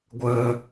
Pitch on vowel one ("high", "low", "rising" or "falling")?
low